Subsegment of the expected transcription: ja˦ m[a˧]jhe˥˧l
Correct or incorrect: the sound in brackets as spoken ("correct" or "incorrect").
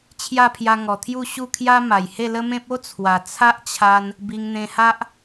incorrect